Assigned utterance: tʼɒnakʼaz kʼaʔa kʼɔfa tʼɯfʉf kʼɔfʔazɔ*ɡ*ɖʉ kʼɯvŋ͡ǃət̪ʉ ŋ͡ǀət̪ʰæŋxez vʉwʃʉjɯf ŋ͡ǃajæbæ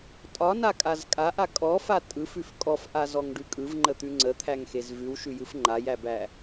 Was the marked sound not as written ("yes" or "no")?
yes